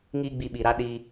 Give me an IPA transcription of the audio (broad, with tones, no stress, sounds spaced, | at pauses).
ŋ iː˦ ɡ͡b i˧ ɓ i˨ ɾ a˦ ɗ iː˧